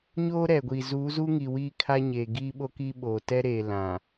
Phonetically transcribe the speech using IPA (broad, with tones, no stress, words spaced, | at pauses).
ɲo˦ɾɛ˨ɡʷi˨ zuː˨˦zu˦ŋi˨ wiː˦kʰa˦ɲeː˨ ɡiː˦ɓo˦ ki˦ɓoː˨ tɛ˦ɾeː˨ lã˨